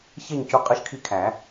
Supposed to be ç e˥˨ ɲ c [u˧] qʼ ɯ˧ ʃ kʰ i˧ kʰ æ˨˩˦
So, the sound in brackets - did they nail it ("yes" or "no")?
yes